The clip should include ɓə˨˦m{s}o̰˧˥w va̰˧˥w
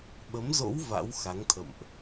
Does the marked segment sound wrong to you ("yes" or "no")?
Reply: yes